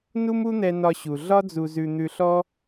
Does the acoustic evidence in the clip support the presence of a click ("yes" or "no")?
no